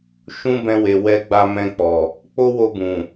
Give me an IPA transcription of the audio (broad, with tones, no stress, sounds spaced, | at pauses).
ʃ ũ˦ b ɛ̃˧ w e˨ w ɛ˧ ɡ͡b a˧ m ɛ̃˧ k͡p ɔ˨ | k͡p o˦ w o˧ b ũ˨